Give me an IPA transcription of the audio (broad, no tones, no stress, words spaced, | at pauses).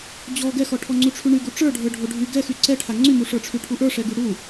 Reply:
d͡ʑɔ ɡɛxɔʈʰɔ ŋ͡ǀuʈ͡ʂʰyɳy ɡuʈ͡ʂə˞ɖʱə˞ ɖʱoɖʱy ɡɛxy ǀɛʈʰa ŋ͡ǀymu ʂə˞ʈ͡ʂʰyʈʰuʔə˞ ʂɛɡyɽu